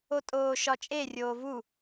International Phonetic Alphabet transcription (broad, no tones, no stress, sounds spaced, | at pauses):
o tʼ oː ʃ ɒ t͡ʃʼ e rʲ oː v u